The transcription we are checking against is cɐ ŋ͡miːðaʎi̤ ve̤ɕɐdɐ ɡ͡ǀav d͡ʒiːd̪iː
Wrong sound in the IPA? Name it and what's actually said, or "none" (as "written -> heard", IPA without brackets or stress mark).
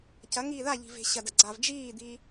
ŋ͡m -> ŋ